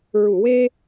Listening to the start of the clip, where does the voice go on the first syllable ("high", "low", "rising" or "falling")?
low